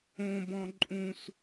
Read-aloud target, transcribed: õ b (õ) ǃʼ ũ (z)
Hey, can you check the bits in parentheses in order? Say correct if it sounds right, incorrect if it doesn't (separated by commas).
incorrect, incorrect